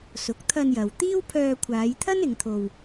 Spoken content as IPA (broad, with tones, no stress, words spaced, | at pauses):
sʊ˨˥k̚ t̪ʰɐ˧njɐ˨w t̪iː˥wpʰœː˧kʷʰaː˨˧jt̪ʰɐ˥n ɪ˨˧ŋt̪ʰo˧w